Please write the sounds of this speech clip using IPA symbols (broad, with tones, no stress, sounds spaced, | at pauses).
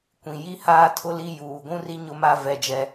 kʷ ĩ˨ j i˦ h aː˦ tʰ ʊ˦ l i˦ j uː˨ ɡʷ ũ˦ r i˦ ɲ ʊ˦ m a˦ v ɛ˦ d͡ʒ ɛ˦